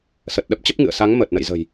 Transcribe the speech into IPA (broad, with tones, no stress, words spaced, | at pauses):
sə˨˩t̚ɗə˦˥p̚ t͡ɕə˦˥p̚ŋɨ̰˧˨ə̯sa˨˦ŋ məː˨˩t̚nə̰˧˨jzə̤˨˩j